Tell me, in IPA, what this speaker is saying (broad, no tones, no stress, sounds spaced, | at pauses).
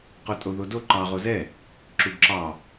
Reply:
q o tʼ o ð o d o ǃ ɑ ʁ o z ɛ | ǁ u ɡ ǁ ɑ